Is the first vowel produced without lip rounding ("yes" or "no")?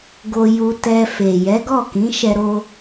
no